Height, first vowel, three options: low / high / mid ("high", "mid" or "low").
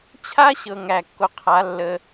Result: low